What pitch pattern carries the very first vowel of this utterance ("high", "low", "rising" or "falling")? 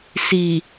low